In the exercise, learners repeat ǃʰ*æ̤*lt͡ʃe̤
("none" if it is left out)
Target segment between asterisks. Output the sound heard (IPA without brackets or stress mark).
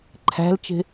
æ̤